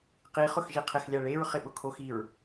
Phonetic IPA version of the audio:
q i χ ʊ x ʒ i qʰ ɪ x lʲ a ɭ e ɹ χ ɪ ɓ ʊ kʰ o x i ɹ

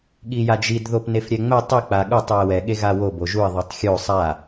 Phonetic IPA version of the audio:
ɠ i j a d͡ʒ i d ð o p n e f ɾʲ ɛ ŋ͡m ɛ tˤ i k͡p a ɠ u tˤ u ə̯ w ɛ ɠ e ɣ a w o b o ʒ u ə̯ ðˤ u tˤ xʲ o sˤ a

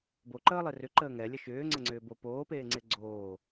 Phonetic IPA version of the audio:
b o ǃ əː lˠ e r ʏ ǃ əː ŋ ɛ lʲ ə ʃ ʏː ŋ͡ǀ ə ŋ͡ǀ ʏː b o p oː p eː ŋ͡ǀ e ɡ͡ǀ oː

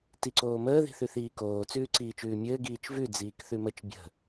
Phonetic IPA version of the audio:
t i ǀ oː m əː ð i̤ θ ʉ θ iː k oː t͡s ʉː ǀ iː t͡ʃ ʉː mʲ ɘː ɡ iː t͡ʃ v ʉ d͡z iː k θ ʉ m ə t͡ʃ bʲ ə̤

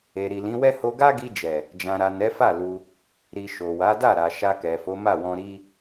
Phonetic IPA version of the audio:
e˨ ɾ i˨ l ĩ˨˦ w ɛ˦ h o˧ ɡ a˦ ɡ i˧ d͡ʒ ɛ˨ | d͡ʒ ã˨ ɾ a˨ n ɛ˨˦ f a˦˨ l u˧ | ɾ i˨ ʃ o˨ w a˨˦ d a˦˨ ɾ a˨ ʃ a˧ k ɛ˨ f o˨˦ m a˦˨ w ɔ̃˧ ɾ i˦

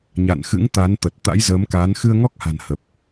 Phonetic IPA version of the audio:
ɲ a̰˧˨ n x ɨ̰˧˥ ŋ t̪ a˨˦ n t̪ ə˨˩ t̚ t̪ a̰˧˥ j z əː˨˦ m k aː˨˦ n x ɨ˧ ə̯ ŋ ɔ˦˥ k̚ h a̤˨˩ n h ə˨˩ p̚

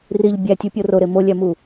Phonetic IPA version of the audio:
r i ʎ bʲ æ tʲ u pʲ o r o ɾ e m o lʲ æ m u

